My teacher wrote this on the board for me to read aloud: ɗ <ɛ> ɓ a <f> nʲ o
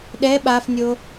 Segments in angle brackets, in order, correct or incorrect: correct, correct

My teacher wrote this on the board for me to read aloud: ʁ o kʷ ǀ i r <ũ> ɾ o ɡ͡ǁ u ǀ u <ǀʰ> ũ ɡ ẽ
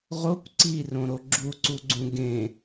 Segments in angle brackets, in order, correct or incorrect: incorrect: õ, incorrect: ɡ͡ǀ

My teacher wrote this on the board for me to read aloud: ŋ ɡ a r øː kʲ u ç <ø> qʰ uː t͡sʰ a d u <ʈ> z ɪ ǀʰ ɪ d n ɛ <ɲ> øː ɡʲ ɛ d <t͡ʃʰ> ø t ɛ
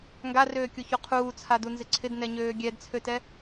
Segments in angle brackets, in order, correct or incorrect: incorrect: u, incorrect: n, correct, incorrect: t͡sʰ

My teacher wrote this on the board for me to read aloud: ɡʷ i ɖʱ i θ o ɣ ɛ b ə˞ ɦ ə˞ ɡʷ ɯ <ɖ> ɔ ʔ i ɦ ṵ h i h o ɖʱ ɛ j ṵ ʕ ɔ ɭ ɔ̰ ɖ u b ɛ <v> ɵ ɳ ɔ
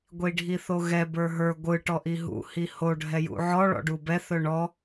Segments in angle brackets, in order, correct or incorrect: incorrect: ʈ, incorrect: θ

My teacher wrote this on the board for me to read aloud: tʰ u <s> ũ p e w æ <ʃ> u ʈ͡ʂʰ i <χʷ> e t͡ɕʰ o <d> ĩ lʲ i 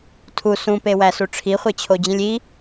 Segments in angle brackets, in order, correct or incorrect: correct, incorrect: s, correct, incorrect: d͡ʑ

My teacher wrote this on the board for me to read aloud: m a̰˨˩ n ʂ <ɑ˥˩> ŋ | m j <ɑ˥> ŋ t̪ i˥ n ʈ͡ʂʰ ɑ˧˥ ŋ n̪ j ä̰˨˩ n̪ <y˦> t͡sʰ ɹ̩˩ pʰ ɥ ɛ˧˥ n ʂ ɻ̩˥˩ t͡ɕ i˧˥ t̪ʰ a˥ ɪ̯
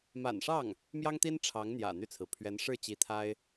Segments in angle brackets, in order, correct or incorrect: correct, correct, incorrect: y˥˩

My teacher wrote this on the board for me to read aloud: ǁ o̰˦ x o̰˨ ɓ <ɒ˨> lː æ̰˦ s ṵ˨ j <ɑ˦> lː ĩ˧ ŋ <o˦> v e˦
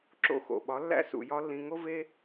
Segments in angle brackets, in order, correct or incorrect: incorrect: ɒ˨˦, incorrect: ɒ˦, correct

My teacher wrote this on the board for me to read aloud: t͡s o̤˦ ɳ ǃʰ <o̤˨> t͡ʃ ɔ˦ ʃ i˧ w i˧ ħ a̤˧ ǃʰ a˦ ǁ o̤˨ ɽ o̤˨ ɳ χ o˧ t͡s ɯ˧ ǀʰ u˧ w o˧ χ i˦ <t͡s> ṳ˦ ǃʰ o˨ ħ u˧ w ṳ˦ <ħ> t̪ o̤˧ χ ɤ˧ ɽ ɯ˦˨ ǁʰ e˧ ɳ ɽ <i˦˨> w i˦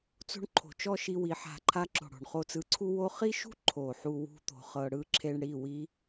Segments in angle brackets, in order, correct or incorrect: correct, incorrect: ʃ, incorrect: none, correct

